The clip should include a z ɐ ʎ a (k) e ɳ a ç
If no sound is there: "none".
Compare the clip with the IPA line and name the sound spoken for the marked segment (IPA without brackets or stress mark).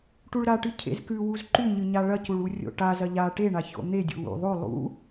ʈ